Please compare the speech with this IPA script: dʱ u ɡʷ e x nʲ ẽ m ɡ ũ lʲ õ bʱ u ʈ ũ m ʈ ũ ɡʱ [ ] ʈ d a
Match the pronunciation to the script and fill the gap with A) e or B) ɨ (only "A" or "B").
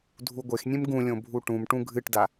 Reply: B